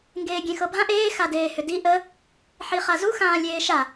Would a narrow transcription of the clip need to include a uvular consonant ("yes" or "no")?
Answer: yes